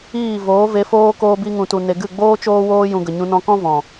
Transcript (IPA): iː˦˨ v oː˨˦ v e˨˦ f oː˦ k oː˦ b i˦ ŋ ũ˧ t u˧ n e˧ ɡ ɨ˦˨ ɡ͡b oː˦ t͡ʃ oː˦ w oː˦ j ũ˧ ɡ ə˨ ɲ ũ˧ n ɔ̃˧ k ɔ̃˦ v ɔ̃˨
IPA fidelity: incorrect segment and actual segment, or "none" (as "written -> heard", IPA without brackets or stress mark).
none